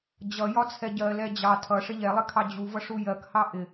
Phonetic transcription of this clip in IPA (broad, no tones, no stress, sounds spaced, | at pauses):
d͡ʑ ʌ j ɒ t͡sʰ ɛ ɟ ɜ l ɛ d͡ʑ ɑ tʰ ʌ ʂ ɪ ʎ ɛ lˠ ɪ kʰ ɑ d͡ʑ u v ʌ ʂ u j ɜ k h ɑ ʔ ɪ